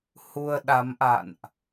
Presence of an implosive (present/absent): present